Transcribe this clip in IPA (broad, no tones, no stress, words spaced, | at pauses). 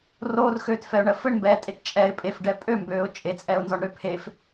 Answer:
roːrxøːtfɛʊ̯ɳɜ fɘɳmbɛːtʼet t͡ʃʼɛɪ̯ pʼefɖɛ pʼømbøːʊ̯ t͡ʃʼet͡sʼɛʊ̯nzɔɳɾø pʰef